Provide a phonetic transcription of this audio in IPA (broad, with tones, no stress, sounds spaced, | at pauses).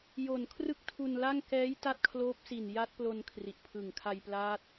j o˨˩ n kʰ r ɯ˥˩ k̚ tʰ u˧ n l a˥˩ ŋ k ɛː˦˥ j t a˥˩ t̚ kʰ l oː˦˥ p̚ s i˨˩ n j a˦˥ t̚ p l o˧ n kʰ r i˨˩ ʔ pʰ ɯ˨˩ ŋ kʰ a˧ j p l aː˦˥ t̚